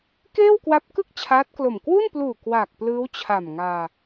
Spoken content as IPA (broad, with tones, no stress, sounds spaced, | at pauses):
k eː˥˩ w k w a˦˥ p̚ k ɯ˥˩ k̚ t͡ɕʰ aː˦˥ t̚ k l o˨˩ m k w u˥˩ n p l uː˨˩ k w aː˨˩ k̚ p l ɯː˦˥ w t͡ɕʰ a˨˩ m ŋ aː˧